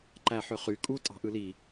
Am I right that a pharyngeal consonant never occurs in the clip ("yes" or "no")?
no